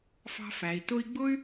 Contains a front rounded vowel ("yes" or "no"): yes